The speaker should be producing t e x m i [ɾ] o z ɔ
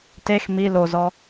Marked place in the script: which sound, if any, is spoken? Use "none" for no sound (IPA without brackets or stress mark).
l